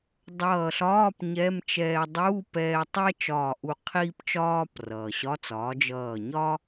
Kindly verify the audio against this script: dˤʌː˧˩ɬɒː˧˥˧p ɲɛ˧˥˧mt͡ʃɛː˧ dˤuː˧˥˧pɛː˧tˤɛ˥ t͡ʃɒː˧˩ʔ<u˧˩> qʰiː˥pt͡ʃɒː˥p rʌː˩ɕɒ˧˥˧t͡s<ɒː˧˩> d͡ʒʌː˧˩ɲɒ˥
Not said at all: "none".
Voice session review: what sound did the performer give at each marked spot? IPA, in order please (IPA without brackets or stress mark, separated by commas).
u˧˩, ɒː˩˥